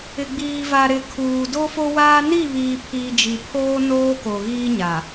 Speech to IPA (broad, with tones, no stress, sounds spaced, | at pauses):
ɪ˨ ɡ͡b iː˨ v a˨ ɾ ɪ˨ kʰ uː˨ d o˦ f o˦ w aː˦ n i˦˨ β iː˨ pʰ iː˨ d͡ʒ i˨ pʰ oː˦ n oː˦ k o˨ ɣ iː˦ ɲ a˨